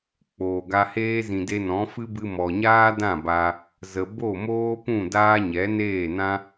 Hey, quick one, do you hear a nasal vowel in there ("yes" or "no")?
yes